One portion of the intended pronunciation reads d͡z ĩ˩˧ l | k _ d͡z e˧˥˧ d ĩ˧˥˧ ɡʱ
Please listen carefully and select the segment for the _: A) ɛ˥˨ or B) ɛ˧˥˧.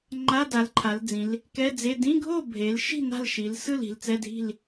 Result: B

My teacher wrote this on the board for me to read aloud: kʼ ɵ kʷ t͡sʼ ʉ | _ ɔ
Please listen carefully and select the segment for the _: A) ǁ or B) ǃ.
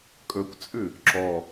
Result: A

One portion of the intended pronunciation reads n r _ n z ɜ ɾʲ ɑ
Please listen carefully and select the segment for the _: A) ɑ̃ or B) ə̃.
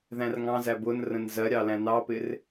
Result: B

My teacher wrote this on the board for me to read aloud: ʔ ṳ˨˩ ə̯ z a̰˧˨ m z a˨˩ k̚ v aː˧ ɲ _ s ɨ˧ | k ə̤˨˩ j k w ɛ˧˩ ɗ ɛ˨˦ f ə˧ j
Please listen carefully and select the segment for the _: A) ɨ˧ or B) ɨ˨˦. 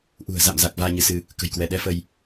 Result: B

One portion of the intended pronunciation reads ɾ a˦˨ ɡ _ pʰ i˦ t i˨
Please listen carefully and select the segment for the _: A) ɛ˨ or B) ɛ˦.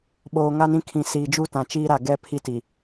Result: B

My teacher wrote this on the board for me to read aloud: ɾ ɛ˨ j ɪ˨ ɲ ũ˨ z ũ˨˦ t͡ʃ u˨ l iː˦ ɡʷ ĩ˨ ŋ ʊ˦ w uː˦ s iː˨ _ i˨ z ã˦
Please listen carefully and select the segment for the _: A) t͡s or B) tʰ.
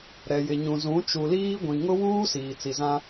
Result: A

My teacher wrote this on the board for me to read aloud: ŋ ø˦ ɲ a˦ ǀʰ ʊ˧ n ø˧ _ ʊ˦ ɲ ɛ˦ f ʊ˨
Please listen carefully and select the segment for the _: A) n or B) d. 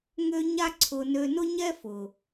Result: A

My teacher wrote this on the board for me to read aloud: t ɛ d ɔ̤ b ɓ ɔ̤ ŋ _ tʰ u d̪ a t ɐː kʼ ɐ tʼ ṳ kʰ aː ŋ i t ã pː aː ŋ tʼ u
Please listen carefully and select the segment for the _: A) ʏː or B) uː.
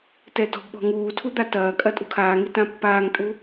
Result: B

